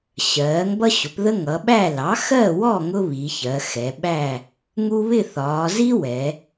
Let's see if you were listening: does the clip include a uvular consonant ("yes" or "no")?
no